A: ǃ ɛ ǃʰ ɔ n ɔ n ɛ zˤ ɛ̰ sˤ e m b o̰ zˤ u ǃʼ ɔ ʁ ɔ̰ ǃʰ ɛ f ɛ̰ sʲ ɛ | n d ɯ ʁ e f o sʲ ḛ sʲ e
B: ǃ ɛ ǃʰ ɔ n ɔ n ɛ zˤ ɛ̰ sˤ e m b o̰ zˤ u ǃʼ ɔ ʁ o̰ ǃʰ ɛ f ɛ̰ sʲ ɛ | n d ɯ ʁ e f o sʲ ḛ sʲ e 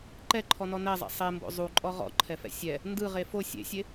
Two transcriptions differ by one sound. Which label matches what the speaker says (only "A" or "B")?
A